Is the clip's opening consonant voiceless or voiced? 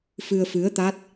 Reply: voiceless